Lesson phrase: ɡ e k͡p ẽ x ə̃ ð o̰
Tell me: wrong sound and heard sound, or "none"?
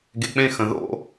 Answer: none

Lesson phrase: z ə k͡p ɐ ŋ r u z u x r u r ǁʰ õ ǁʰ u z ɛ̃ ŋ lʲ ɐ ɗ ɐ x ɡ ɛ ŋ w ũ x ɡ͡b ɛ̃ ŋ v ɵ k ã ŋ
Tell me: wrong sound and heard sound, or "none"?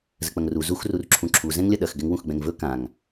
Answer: õ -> ũ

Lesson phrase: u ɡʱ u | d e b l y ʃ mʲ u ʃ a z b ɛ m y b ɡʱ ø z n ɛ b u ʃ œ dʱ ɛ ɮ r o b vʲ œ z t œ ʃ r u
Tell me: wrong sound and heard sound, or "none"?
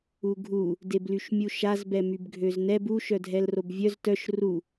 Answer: ɮ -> l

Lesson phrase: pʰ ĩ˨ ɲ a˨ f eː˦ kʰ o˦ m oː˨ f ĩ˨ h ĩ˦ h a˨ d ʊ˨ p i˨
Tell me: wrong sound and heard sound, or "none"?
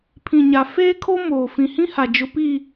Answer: d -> d͡ʒ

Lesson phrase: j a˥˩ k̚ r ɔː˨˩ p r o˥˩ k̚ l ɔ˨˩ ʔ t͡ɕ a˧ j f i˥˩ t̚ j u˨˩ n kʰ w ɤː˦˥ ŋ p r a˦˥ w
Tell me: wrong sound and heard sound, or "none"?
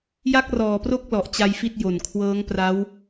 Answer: u˨˩ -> o˨˩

